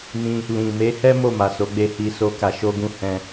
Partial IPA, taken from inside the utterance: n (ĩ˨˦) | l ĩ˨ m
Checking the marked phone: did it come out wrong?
yes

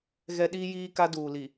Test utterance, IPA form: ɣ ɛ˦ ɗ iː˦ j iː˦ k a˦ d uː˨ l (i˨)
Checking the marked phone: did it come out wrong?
no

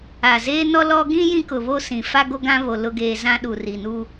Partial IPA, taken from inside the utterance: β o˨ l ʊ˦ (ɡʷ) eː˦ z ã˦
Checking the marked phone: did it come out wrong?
yes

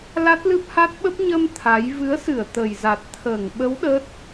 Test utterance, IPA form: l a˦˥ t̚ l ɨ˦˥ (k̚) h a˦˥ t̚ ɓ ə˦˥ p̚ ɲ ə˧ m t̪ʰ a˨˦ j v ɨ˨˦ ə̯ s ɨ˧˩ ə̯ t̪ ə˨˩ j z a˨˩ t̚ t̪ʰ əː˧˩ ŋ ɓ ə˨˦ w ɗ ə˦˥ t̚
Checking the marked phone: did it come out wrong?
yes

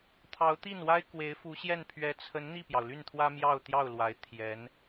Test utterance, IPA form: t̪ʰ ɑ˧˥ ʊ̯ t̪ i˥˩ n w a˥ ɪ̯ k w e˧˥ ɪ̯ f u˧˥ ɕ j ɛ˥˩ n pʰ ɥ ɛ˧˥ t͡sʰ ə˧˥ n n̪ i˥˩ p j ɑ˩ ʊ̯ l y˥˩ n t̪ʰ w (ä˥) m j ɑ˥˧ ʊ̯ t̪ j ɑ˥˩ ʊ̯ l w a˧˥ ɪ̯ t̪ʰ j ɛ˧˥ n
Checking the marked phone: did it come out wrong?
no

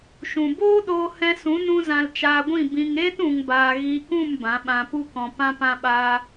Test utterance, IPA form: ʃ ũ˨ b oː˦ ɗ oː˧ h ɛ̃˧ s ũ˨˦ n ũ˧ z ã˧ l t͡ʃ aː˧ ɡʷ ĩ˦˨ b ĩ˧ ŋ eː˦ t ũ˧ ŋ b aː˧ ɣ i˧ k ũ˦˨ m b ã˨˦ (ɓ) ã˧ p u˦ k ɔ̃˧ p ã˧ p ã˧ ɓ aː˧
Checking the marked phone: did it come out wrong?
no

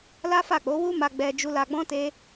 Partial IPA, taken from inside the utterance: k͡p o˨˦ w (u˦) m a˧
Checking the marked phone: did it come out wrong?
no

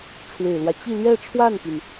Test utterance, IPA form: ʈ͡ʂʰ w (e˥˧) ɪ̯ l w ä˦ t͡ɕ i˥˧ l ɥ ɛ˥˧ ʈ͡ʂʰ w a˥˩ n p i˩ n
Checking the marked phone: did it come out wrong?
yes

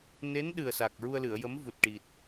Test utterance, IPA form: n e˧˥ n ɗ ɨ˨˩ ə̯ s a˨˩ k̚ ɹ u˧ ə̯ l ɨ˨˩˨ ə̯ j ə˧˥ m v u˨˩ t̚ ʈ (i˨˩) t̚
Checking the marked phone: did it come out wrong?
no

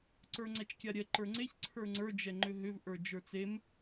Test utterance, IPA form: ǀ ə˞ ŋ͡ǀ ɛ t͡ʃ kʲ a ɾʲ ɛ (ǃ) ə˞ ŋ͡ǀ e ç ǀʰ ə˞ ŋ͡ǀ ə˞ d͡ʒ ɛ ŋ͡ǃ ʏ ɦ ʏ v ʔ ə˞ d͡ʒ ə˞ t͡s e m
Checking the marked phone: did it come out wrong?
no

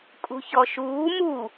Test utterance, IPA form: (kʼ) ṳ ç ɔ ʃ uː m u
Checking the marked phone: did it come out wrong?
no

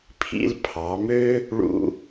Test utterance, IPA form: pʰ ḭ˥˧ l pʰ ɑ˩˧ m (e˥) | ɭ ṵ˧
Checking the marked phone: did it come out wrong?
yes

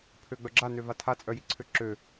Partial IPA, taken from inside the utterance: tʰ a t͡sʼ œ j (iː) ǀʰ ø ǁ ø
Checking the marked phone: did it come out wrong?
yes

